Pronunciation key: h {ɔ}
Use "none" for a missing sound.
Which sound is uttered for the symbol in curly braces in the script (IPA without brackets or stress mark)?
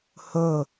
o